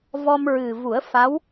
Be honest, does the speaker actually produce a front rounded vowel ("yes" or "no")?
no